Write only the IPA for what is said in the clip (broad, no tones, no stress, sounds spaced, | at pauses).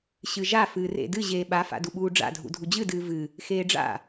ɕ ɨ ʒ a f ɨː r ḛ d ɨ ʑ eː ɓ a f a̰ d u ɓ uː ɖ͡ʐ a̰ dʱ ṵ dʱ u d͡ʑ ɨ d ɨː v ɨ | x eː ɖ͡ʐ a̰